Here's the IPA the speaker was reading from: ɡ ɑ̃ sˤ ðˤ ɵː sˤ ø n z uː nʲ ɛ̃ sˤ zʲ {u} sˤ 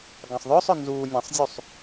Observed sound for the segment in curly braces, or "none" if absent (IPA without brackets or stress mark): u